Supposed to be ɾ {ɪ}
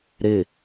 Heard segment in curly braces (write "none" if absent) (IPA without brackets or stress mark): ɪ